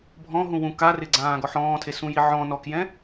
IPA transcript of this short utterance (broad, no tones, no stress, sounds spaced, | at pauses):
bʱ ɔ̃ ɦ ũ w ũ k a r ɪ ɡ͡ǀ ãː ɡ ɔ ħ ɔ̃ː tʰ e s ũ j i ʕ ɔ̃ n ɔ k j ɛ̃